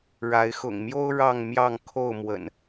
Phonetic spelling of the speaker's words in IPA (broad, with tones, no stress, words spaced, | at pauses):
ɻa˨˦ɪ̯ xʊ̰˨˩ŋmjo˦ʊ̯ ɻɑ˥˨ŋmjɑ˥˨ŋ kʰo˥˨ʊ̯mwə̰˨˩n